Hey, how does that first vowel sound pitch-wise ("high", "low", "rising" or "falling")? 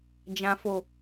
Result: low